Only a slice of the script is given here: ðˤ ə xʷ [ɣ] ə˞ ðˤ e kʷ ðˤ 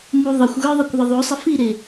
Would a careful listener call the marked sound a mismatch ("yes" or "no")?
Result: no